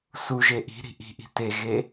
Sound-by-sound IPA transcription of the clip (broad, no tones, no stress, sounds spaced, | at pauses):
s u ʒ e ʔ i̤ ɾ i̤ ʔ i̤ ʔ i̤ t e ɣ e